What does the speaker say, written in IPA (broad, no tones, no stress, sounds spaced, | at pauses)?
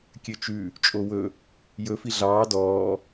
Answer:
kʲ ø t͡ʃ ʉ | t͡ʃʼ o w ɵ | j ɵ f i ɮ ɑː d ɔː